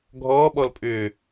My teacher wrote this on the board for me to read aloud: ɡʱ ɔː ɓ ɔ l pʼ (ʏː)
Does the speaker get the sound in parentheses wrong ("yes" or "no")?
no